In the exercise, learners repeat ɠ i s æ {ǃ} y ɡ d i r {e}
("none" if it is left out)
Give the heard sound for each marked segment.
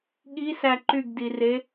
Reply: ǃ, e

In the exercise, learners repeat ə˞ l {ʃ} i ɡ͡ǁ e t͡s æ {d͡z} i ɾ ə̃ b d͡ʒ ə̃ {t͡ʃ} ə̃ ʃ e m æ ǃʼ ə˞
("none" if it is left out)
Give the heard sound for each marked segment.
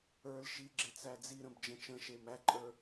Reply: ʃ, d͡z, t͡ʃ

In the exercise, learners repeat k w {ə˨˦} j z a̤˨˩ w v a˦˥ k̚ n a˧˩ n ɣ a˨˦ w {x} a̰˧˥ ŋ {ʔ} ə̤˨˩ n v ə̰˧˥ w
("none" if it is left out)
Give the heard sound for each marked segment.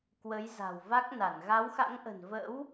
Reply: ə˨˦, x, ʔ

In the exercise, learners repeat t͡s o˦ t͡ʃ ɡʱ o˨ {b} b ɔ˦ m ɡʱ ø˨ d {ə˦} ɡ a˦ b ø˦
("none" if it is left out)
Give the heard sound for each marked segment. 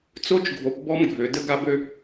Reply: p, ə˦

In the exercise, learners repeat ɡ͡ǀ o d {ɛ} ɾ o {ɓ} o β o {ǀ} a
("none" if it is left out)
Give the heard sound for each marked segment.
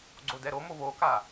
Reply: ɛ, m, k

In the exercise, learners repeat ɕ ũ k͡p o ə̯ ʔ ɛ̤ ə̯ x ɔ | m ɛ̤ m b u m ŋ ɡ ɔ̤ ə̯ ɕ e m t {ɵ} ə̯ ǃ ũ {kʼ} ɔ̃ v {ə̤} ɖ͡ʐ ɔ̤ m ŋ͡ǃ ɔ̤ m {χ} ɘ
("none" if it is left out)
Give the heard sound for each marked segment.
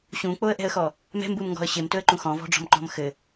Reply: ɵ, x, ɔ̤, x

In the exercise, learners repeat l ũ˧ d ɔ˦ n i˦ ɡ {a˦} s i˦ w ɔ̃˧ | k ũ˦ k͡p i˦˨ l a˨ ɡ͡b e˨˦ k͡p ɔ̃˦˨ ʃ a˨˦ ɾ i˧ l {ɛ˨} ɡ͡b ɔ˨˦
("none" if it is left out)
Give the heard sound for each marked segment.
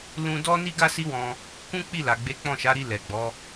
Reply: a˦, ɛ˨

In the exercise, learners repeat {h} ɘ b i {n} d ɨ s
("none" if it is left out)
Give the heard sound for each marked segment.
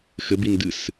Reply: x, n

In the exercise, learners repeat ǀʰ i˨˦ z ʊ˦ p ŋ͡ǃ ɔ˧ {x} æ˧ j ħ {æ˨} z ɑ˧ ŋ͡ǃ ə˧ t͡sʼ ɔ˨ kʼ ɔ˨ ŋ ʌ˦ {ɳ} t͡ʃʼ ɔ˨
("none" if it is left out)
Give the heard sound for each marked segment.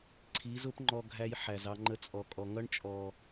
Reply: ɡʱ, æ˨, ɳ

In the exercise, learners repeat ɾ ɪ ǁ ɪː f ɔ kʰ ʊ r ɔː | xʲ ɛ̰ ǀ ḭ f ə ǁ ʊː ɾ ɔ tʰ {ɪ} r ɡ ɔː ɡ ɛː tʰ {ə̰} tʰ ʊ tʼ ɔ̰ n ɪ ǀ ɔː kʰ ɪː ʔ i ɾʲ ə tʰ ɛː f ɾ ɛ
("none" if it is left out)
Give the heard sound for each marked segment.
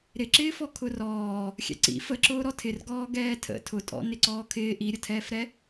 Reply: ɪ, ə̰

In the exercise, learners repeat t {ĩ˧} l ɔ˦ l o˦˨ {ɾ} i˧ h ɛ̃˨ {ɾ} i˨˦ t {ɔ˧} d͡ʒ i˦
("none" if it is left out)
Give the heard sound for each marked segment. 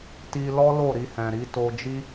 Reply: i˧, ɾ, ɾ, o˧

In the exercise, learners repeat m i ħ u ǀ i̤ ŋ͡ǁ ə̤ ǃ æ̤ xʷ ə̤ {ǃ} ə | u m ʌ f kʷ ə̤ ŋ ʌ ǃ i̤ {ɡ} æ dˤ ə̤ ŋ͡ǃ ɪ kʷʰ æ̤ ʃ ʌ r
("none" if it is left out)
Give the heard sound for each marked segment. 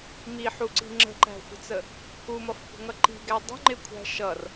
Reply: t͡s, ɡ

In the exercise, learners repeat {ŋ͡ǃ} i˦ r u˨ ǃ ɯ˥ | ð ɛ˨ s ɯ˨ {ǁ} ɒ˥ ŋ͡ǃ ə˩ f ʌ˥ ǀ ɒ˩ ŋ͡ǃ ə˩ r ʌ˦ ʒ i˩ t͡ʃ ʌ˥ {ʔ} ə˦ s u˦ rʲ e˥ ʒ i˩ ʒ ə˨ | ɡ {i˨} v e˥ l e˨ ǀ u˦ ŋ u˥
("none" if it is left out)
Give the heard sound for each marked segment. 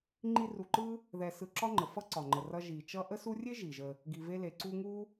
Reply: ŋ͡ǃ, ǁ, ʔ, i˨

